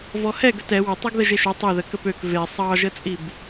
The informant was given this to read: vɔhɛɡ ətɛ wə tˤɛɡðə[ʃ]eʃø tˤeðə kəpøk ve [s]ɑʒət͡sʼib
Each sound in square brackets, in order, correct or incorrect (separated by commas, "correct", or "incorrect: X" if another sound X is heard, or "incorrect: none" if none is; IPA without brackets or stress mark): incorrect: ʒ, incorrect: sˤ